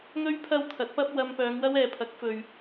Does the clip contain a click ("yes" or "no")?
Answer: no